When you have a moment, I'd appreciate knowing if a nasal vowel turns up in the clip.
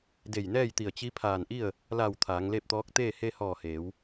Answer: no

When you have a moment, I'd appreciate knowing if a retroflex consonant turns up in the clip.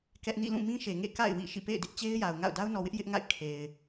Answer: no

